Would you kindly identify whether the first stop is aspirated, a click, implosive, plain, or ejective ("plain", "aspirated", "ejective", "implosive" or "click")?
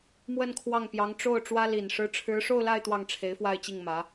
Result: aspirated